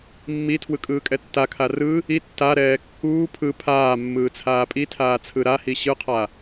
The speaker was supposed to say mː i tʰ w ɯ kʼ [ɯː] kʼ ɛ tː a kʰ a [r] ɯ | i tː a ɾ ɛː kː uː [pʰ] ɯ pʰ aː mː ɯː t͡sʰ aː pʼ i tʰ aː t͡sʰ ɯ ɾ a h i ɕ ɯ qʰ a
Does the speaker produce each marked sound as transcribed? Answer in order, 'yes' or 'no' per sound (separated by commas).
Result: yes, yes, yes